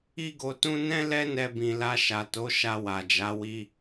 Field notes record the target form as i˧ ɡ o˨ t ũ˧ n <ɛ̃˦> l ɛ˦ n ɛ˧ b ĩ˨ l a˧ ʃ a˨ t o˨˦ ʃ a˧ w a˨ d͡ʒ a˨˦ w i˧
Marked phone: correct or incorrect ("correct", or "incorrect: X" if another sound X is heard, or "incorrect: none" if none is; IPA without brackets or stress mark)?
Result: correct